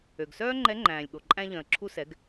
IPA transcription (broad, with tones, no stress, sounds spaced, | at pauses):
ø˩ ɡ s œː˥ ŋ͡ǃ ɛ˧˥ ŋ͡ǃ æ̃ː˩ lʲ ɠ o˩ ǃʼ æ̃˧ ʎ œ̃˩ ə̯ ǁʰ u˧ s ɛ˩˧ ɡ